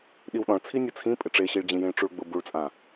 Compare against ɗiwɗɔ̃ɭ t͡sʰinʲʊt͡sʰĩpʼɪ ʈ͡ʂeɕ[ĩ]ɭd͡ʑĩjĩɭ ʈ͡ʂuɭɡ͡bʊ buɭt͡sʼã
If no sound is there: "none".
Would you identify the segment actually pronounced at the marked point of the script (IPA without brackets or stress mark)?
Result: i